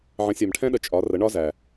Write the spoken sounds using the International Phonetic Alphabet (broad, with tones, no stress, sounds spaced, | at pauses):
ʕ ə̃˨˦ sʲ ɜ˨ m ʈʰ ɛ̃˦ ɗ ə˨ t͡ʃʼ ɒ˨˦ r ə˨˦ ɳ ɒ˦ z æ˨